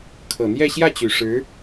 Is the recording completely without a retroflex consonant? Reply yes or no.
no